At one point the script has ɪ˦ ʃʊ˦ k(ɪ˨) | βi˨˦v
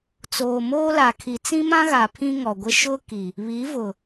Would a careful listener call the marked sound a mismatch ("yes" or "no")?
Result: yes